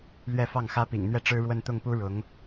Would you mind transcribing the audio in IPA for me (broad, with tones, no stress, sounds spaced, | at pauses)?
l ɥ ɛ˥˧ f ɑ˥˩ ŋ x ä˥ p ḭ˨˩ ŋ n̪ ɥ ɛ˥˩ ʈ͡ʂ ɻ̩˥ ɻ w ə˥˧ n t̪ ʊ˥˩ ŋ p u˥ ɻ ʊ˧˥ ŋ